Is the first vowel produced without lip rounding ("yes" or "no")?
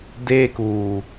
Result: yes